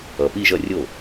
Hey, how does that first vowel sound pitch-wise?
low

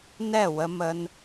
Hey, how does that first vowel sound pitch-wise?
falling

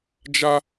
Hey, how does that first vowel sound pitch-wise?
high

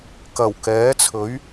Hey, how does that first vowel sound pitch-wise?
low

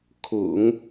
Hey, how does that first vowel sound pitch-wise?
low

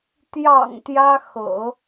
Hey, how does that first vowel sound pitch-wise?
low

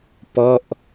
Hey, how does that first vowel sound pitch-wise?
falling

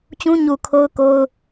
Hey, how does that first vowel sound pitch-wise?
high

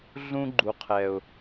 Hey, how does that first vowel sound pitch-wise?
high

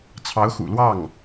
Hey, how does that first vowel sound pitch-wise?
rising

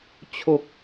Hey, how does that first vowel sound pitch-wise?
low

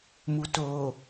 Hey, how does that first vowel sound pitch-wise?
low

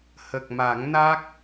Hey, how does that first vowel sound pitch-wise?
low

